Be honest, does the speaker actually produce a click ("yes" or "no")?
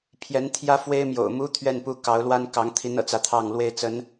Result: no